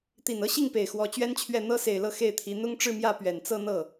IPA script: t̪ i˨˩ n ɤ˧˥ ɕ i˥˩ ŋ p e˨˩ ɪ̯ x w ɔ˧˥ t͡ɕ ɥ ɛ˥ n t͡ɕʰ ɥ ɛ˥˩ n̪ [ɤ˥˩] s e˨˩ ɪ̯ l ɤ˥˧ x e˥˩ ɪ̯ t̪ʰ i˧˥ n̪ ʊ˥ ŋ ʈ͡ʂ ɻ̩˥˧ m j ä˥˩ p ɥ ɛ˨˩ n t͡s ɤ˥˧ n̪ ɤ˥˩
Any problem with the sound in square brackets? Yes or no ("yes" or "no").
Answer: yes